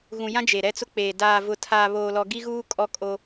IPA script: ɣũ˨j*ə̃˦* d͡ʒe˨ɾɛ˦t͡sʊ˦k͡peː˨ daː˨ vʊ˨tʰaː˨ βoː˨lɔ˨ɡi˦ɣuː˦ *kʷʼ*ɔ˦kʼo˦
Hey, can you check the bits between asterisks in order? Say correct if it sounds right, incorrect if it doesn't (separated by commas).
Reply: incorrect, incorrect